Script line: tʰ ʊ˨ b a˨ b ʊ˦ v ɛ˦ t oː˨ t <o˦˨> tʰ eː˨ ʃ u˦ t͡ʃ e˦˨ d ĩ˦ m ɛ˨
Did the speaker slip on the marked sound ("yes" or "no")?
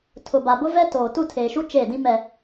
yes